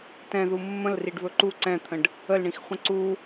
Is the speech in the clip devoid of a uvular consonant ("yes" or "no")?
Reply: no